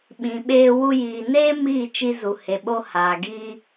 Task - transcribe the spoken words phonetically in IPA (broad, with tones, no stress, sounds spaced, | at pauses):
ɓ ĩ˨ ɓ eː˧ w u˧ j iː˨ n eː˦ m iː˦˨ t͡ʃ i˧ z u˨ h e˨ ɓ o˧ h aː˨ ɡ iː˧